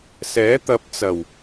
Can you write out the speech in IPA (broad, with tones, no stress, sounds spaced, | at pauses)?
s ɛː˨˥ t̪ ɐ˨ p̚ t͡s ɐ˨˩ w